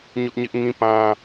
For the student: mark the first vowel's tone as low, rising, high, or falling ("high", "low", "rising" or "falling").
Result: high